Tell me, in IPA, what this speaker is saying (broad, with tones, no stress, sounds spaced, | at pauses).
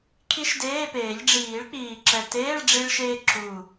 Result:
kʰ i˦˥ ʃ d eː˧˥˧ p eː˨˩˦ ʎ ɖ͡ʐ iː˨˩˦ ɭ k͡p iː˨˩ ǁ ɛ˨˩ t eː˧˥˧ ɭ ɖ͡ʐ i˧ ɭ ʃ eː˧ ǁ u˨˩